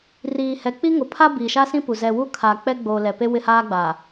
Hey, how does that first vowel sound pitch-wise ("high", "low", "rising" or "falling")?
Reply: low